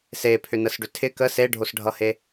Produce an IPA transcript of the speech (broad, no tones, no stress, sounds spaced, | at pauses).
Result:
s e pʰ ʏ n ə s ɖ ʏ tʰ ɪ k ə s e ɖʱ o s ɖʱ ʌ h e